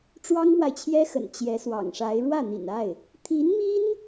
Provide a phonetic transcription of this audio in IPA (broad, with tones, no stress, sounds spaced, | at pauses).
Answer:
ʈ͡ʂ w ɑ˥ ŋ m w a˨ ɪ̯ t͡ɕʰ j ɛ˥ x ə̰˨˩ n t͡ɕ j ɛ˧˥ s w ɑ̰˨˩ ŋ ʂ a˧˥ ɪ̯ ɻ w ä˥˩ n̪ ḭ˨˩ n a˥˩ ɪ̯ | t̪ʰ i˧˥ n m i˥ n